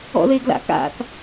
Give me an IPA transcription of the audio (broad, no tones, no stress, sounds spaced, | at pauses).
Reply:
ɔ̰ ð e ɡ l a̰ k a̰ θ